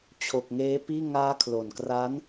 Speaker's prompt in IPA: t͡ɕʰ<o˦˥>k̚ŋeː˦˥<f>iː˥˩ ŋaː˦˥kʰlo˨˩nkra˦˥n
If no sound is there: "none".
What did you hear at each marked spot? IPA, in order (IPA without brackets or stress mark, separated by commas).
o˨˩, p